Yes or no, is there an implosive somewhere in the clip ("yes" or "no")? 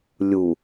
no